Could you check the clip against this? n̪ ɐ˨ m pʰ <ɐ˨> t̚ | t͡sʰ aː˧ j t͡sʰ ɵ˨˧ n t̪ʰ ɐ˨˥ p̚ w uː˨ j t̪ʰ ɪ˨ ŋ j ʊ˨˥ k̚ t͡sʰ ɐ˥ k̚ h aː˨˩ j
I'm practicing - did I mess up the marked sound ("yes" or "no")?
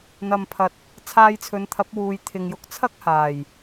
no